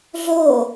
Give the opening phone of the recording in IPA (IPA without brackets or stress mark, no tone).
ɮ